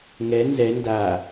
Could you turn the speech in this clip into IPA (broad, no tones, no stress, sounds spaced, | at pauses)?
ŋ ɛ n z ɛ n d a